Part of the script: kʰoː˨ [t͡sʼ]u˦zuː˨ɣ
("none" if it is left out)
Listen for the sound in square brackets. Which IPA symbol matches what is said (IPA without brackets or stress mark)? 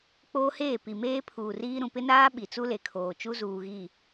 t͡ʃ